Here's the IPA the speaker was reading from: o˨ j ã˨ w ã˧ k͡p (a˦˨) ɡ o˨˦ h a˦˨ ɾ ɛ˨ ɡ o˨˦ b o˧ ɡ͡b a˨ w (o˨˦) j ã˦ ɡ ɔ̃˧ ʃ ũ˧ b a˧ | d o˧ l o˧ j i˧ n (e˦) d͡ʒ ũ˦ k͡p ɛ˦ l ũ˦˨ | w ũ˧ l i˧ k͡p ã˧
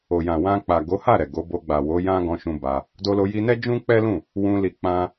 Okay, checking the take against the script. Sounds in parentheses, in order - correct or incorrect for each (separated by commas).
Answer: incorrect, correct, incorrect